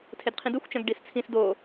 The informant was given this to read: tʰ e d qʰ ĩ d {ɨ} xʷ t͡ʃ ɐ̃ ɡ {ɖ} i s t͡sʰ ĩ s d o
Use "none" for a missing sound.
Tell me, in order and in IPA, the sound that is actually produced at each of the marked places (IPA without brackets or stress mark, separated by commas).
ɨ, ɖ